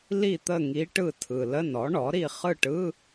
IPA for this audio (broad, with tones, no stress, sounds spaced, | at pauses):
l i˦˨ t̪ ə˦˨ ŋ i˧˥ ʈ ɯ˦˨ tʰ ɯ˨ l ə˧˥˧ n ɔ˩˥ ɳ ɔ˩˥ ɾ i˦˨ χ ɯ˦˨ ʈ ɯ˧˥˧